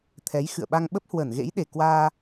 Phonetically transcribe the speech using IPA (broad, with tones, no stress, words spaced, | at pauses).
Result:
t̪ʰɛ˨˦jxɨ̰˧˨ə̯ɓa˧ŋ ɓə˦˥p̚hwə˧˩nɣḛ˧˥j ɗe˨˩kwaː˧